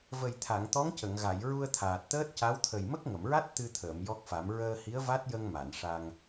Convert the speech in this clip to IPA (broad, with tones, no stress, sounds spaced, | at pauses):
v ə˨˩ j t̪ʰ a˨˩˨ ŋ t̪ ɔ˧˥ ŋ c ə˨˩˨ ŋ ɣ a˨˩˨ j ɹ u˧ ə̯ t̪ʰ aː˨˩ t̚ t̪ əː˦˥ t̚ c a˧˥ w t̪ʰ ə˨˩ j m ə˦˥ k̚ ŋ ə˨˩˨ m ɹ a˦˥ t̚ t̪ ɨ˧ t̪ʰ əː˨˩˨ m j ɔ˦˥ k̚ f a˨˩˦ m ɹ əː˧ h i˧˥ ə̯ v a˦˥ t̚ j ə˧ ŋ m a˨˩˨ n ʂ a˧ ŋ